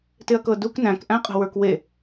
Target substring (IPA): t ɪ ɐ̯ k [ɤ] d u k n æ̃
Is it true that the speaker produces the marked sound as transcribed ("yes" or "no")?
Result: yes